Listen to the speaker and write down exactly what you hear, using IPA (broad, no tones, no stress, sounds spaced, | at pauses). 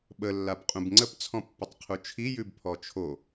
ɓ ə lː a b qʼ ũ b ŋ͡ǀ ə p t͡sʰ ɔ̃ pː ə tˤ qʰ u t͡ʃʰ i j ʉ b pʰ ɔ t͡ʃʰ o